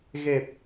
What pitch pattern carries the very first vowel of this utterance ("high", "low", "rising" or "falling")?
low